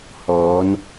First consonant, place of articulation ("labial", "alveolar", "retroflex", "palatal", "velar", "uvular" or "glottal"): glottal